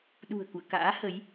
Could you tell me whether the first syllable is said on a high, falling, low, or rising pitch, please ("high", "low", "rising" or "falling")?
low